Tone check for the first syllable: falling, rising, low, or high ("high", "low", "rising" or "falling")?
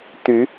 rising